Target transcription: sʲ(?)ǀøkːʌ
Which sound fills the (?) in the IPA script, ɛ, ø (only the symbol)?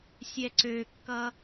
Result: ɛ